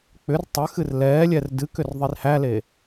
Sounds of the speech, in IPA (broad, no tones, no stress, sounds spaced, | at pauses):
k͡p ʏ r tˤ ʏ x ɨ r l ɛː lʲ ɛ r d ɨ k ʏ r ðˤ i r h æ l e